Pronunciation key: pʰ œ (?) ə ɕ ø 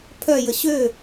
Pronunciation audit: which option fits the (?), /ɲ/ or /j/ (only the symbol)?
j